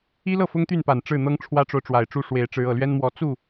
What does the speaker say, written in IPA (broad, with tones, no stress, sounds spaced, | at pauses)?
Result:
i˥ l ɤ˥˩ f ʊ˥ ŋ t̪ y˥˩ n p a˨˩ n ʈ͡ʂ ɻ̩˥˩ n̪ ɤ˥ ŋ ʈ͡ʂʰ w ä˥ ʈ͡ʂ o˨ ʊ̯ ʈ͡ʂ w a˨˩ ɪ̯ ʈ͡ʂ u˥˩ ʂ w e˧˥ ɪ̯ ʈ͡ʂ ɻ̩˧˥ ɤ˨˩ l ɥ ɛ˥ n m w ɔ˧˥ t͡s u˥˩